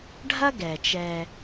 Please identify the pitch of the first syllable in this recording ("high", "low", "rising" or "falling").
high